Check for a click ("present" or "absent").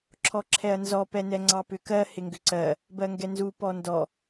present